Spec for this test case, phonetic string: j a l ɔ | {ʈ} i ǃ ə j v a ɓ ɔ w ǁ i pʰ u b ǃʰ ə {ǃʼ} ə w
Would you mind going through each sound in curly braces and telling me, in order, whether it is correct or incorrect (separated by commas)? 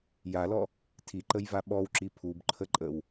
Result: incorrect, correct